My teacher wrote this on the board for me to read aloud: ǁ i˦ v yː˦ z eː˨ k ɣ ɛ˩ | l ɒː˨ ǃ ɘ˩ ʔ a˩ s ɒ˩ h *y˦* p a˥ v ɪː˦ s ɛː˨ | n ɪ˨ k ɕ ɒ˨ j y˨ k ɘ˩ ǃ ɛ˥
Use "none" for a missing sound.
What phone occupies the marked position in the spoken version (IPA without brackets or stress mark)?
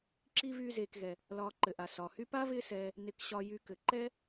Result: y˦